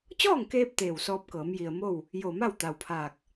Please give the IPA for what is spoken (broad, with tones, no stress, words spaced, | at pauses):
t͡ɕɔː˥˨ŋkeː˧p̚ t̪eː˧˩wsɔː˧p̚kɤː˩˧m ji˩ə̯mo˥˨w | jo˧˩ma˥˨w t̪a˩wpʰaː˧˩k̚